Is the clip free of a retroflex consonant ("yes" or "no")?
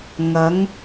yes